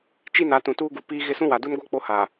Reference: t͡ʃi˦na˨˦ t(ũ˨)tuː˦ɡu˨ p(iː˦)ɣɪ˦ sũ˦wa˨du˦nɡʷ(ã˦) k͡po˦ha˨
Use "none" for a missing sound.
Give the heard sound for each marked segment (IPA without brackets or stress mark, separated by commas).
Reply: ũ˨, iː˦, a˦